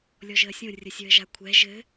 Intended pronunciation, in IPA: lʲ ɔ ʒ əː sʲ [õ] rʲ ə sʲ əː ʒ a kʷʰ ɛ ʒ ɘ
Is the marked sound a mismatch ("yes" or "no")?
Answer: no